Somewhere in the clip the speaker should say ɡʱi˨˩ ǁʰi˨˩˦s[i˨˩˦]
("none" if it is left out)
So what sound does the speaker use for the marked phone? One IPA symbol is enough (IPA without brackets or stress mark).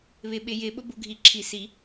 i˨˩˦